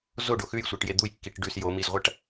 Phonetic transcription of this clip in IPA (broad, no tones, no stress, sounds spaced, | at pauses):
z o ɖ o x ʉ j sʷ e ʈ j e d̪ u j kː i ʈ ɖ ʉ s j o m i z ʁʷ ɐ ʈ